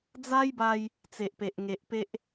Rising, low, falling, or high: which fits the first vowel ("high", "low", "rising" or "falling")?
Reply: high